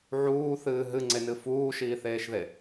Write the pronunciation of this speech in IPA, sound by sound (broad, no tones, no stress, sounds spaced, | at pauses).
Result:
ʕ uː θ ɨː ɦ ɨ ŋ͡ǀ e n ɨ f uː ʃ iː θ eː ʃ ð e